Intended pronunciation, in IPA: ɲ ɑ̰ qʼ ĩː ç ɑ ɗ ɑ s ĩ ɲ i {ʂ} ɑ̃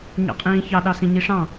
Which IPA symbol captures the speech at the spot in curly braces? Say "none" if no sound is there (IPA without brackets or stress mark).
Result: ʂ